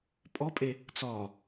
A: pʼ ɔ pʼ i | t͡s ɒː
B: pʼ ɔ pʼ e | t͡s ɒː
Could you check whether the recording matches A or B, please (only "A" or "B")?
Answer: B